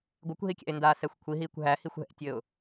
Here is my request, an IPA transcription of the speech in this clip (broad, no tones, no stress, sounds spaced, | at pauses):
ɡʷ ɘ kʷ ɦ i kʲ æ̰ ɪ̯ n d aː s ɛ xʷ kʷʰ i ɦ iː kʷ ɦ æ h i xʷ ɦ ɛ̰ tʲ ɘ ʊ̯